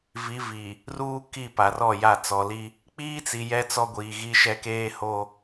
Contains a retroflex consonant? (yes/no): no